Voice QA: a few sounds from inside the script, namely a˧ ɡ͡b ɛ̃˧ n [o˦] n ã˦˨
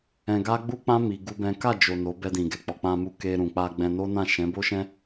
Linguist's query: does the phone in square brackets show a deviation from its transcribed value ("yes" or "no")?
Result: no